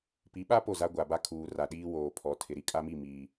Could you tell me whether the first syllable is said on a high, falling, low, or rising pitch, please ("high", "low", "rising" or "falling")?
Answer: rising